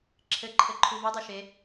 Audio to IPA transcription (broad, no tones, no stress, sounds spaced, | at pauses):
ǁʰ ɘ ǃʰ ɘ ǃʰ u v o dˤ o ʃ e